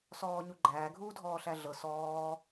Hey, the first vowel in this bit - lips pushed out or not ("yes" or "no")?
yes